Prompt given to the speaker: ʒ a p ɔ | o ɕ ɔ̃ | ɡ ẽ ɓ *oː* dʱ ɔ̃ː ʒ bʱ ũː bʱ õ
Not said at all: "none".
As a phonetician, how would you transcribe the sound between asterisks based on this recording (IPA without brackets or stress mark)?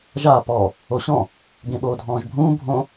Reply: oː